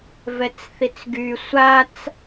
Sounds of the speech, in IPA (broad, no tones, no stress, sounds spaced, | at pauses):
v ɛ t͡s θ i t͡s ɡ y sʷ a t͡s